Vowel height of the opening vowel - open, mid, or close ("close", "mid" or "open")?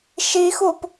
close